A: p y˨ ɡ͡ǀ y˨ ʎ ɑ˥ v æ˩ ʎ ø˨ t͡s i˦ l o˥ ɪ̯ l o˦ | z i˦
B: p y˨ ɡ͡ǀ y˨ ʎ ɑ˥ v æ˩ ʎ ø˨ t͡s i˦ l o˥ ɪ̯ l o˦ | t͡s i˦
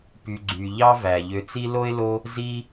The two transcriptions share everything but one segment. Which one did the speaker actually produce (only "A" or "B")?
A